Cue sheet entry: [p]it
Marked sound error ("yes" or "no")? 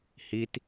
yes